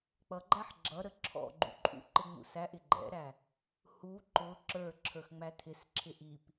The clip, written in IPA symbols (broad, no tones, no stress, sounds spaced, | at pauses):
k͡p ʌ ɡ͡ǃ æ ħ ɡ͡ǁ ʌ ɾ ə ǁʰ ɔ̰ ɡ͡ǃ ṵ ǃʼ ṵ ǃ ɪ ŋ͡m ṵ s æ ʔ ɪ ɡ͡ǃ ɛ̰ ɾ æ | h u ǃ ʊ ǁ ə˞ ǁʰ ə˞ x ŋ͡m æ tʰ ɪ s ǁʰ ɪ ʔ i p